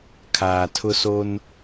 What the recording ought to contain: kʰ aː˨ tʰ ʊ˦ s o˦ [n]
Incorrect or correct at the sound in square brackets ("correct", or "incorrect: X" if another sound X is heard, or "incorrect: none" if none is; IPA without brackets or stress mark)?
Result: correct